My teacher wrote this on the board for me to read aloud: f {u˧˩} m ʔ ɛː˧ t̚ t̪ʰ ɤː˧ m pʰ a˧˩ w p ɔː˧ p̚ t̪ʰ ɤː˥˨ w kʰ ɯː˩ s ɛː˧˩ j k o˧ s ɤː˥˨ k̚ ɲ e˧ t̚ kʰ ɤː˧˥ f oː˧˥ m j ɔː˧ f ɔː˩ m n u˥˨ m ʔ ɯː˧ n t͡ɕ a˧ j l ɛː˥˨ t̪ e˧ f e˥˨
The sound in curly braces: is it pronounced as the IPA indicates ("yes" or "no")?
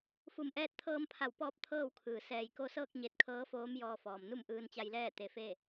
yes